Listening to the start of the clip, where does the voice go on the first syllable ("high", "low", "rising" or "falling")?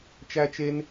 high